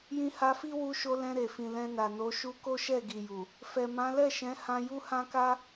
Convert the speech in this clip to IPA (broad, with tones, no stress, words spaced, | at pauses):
jĩ˧ha˧fi˦ wu˧ʃo˧ lɛ̃˧ɾe˨fĩ˨ lɛ̃˧na˨no˨˦ʃu˦ ko˦ʃɛ˦˨ɡi˨ju˨ | fɛ˨mã˨˦lɛ˦˨ʃɛ̃˨˦ hã˧ju˦hã˦ka˦